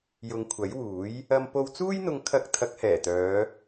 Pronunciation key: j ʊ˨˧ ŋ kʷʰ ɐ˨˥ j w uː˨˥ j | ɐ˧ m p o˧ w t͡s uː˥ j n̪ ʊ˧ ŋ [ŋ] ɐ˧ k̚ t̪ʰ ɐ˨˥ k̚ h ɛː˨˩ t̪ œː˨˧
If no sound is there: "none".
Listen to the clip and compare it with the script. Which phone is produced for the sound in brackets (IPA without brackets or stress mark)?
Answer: kʰ